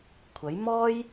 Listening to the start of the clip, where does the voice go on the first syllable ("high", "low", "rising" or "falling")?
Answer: rising